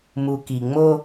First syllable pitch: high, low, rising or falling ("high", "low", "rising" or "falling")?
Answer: low